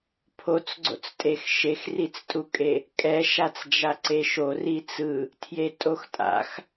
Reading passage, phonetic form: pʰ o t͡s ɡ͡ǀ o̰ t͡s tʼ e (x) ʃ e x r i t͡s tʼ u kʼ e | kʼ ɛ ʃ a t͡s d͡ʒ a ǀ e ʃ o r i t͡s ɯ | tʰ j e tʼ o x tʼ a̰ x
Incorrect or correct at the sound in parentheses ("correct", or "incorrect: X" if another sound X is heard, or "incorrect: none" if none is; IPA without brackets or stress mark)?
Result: correct